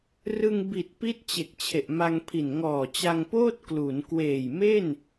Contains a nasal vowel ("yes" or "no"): no